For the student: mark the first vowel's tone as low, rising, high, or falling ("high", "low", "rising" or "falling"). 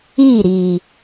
falling